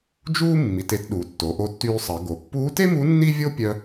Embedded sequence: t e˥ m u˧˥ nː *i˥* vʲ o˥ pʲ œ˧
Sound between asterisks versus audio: correct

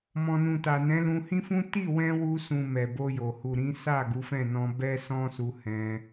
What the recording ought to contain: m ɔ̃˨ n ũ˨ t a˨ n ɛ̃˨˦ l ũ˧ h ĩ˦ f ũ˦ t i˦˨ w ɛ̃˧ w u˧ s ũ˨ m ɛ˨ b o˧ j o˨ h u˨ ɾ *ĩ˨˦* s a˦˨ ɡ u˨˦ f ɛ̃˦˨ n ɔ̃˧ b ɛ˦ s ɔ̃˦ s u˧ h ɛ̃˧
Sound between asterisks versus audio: correct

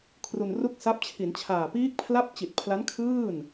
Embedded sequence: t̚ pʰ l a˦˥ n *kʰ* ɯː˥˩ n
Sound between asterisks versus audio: correct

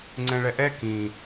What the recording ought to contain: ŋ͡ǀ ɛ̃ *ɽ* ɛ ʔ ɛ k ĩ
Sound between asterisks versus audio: incorrect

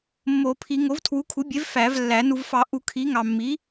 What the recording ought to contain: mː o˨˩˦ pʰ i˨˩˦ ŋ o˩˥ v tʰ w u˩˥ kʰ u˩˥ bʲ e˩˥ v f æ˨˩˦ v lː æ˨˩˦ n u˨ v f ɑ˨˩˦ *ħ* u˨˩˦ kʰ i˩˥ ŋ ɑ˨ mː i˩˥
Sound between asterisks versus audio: incorrect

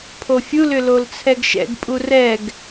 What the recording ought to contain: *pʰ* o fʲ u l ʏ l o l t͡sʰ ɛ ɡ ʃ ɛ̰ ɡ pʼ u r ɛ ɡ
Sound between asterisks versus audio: correct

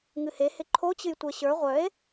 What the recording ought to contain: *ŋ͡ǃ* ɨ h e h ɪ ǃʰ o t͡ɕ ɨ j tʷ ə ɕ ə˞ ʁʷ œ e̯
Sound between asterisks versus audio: incorrect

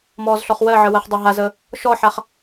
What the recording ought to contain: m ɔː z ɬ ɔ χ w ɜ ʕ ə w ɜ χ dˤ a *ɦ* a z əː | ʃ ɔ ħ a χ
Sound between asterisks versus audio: correct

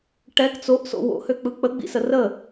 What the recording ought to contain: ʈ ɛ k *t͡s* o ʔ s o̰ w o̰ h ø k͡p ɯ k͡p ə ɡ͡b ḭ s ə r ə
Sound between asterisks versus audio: correct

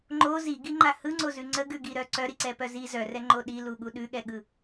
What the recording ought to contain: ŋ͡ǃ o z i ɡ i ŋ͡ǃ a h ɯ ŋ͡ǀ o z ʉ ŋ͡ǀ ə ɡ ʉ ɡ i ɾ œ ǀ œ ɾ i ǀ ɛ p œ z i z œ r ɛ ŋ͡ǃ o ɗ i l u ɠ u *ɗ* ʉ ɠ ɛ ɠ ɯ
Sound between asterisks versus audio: correct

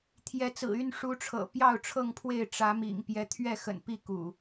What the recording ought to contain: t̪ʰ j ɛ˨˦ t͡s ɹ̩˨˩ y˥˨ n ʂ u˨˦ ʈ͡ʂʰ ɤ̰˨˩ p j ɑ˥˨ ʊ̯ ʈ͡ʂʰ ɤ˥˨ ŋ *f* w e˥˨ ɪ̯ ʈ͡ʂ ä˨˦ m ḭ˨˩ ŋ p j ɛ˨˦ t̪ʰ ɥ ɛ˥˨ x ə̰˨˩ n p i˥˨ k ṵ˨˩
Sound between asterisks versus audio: incorrect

